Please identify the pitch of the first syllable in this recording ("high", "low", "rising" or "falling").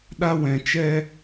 high